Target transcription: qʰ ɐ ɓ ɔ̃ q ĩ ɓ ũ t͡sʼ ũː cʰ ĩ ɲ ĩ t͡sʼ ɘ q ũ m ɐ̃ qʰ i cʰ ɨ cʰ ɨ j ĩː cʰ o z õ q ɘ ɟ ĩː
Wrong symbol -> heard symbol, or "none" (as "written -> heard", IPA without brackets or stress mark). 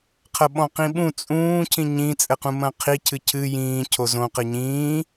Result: ɟ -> ɲ